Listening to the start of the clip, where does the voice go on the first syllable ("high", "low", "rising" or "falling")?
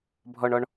low